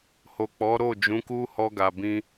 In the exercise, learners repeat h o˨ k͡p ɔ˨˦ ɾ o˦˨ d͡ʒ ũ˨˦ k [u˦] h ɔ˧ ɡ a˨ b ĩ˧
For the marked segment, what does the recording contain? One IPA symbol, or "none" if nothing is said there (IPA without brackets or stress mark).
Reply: u˦